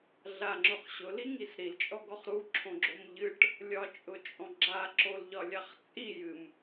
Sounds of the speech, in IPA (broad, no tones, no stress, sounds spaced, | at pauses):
ɮ a ŋ͡ǁ ʊ χ ɕ ʊ l i ŋ i s ɾ i l t͡ʃʼ ɔ ɡ ɔ χ ɾ u ǁʰ õ ɡ͡ǁ o m ʎ ɨ ʈ | lʲ ɒ t͡ʃʼ ʊ t͡ʃʼ ɔ̃ ɡ͡ǁ a ǁ o l ʎ ɒ lʲ a χ t͡sʼ i j ɨ m